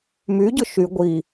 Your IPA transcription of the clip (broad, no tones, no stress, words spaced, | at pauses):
myɟʊ ʃy ɡʷi